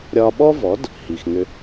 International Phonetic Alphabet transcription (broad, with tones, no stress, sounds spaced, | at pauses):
ɾʲ ɒ˧ ɓ ɔ˥ v ɔ˩˥ d | h i˩ x ŋ ʏ˧